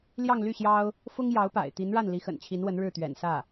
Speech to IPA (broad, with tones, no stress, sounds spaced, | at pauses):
l j ɑ˥˧ ŋ l y˥˩ ɕ j ɑ˥ ʊ̯ | f ʊ˥ ŋ j ɑ˧˥ ʊ̯ p a̰˨˩ ɪ̯ t̪ i˧˥ n ɻ a˥˩ n l i˧˥ x ə̰˨˩ n t͡ɕʰ i˧˥ n w ə˧˥ n ɻ ɻ̩˥˩ t̪ ɥ ɛ̰˨˩ n s ä˥˩